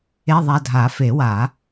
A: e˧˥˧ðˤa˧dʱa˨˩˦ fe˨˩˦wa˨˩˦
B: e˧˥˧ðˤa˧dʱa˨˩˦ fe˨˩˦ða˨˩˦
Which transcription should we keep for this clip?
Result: A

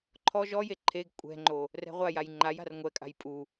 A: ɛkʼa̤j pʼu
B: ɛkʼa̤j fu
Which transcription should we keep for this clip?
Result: A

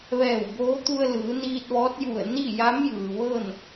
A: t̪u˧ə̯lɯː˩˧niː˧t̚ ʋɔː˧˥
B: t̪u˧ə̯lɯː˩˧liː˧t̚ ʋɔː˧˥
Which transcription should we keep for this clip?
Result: A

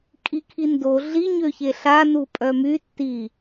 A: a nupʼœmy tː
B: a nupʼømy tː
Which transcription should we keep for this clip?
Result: A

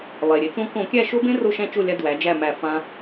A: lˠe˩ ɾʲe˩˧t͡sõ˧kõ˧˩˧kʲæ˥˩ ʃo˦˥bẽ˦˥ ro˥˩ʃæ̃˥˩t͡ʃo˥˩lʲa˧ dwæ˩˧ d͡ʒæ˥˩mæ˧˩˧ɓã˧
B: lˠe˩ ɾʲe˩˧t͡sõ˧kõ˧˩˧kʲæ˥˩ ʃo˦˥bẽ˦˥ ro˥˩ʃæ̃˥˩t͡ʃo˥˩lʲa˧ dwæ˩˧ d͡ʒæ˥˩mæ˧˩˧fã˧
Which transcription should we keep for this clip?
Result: B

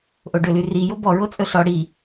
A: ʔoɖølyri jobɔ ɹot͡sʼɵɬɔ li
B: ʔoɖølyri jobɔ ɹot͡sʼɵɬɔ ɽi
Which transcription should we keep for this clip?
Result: B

